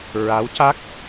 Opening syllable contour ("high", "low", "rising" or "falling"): rising